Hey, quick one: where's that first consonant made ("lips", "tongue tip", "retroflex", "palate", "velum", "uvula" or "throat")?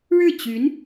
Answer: retroflex